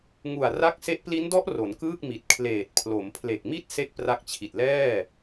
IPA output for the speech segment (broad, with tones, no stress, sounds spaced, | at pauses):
ŋ u˨˩ a̯ r a˦˥ k̚ s e˦˥ ʔ p l i˦˥ n d ɔ˦˥ ʔ r o˩˦ n k ɯː˥˩ k̚ m i˨˩ t̚ kʰ l eː˨˩ t̚ pʰ l o˩˦ m pʰ l e˨˩ k̚ m i˥˩ t̚ s e˥˩ k̚ p r a˦˥ k̚ t͡ɕʰ i˨˩ t̚ l ɛː˥˩